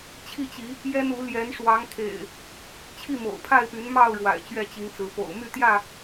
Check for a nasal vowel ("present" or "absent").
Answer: absent